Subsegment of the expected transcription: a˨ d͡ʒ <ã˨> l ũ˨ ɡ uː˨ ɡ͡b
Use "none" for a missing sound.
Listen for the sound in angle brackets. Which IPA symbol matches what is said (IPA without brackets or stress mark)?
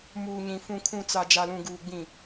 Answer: a˨